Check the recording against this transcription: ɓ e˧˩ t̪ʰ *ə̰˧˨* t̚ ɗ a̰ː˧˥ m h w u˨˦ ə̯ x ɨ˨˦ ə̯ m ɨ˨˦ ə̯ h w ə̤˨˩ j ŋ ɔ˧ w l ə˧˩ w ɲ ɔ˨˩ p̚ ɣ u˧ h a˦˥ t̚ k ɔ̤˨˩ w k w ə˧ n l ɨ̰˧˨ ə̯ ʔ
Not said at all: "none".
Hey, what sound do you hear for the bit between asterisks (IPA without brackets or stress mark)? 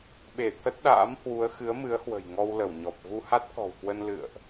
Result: ə˦˥